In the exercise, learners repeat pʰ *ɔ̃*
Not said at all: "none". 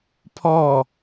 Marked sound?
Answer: ɔ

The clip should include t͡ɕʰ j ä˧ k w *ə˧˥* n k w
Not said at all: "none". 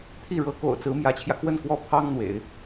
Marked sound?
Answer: ə˥˩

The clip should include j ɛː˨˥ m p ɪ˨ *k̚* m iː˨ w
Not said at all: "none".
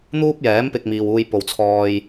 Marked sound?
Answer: k̚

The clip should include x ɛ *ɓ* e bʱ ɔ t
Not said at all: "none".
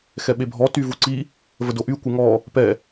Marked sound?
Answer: ɓ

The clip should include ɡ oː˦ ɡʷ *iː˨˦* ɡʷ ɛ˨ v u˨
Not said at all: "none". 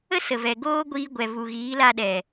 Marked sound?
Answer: iː˧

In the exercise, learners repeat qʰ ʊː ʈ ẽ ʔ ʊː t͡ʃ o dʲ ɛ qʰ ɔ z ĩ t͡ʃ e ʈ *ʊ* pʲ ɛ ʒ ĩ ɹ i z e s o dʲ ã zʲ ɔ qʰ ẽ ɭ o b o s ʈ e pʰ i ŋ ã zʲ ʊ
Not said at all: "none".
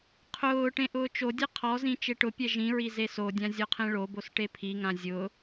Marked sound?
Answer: ʊ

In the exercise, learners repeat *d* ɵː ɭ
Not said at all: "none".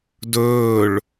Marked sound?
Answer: d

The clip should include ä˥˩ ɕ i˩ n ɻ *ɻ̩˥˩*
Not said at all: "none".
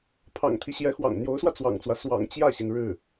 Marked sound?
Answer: ɻ̩˥˩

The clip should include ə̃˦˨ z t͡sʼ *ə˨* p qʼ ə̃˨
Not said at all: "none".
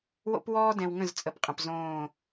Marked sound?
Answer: ə˨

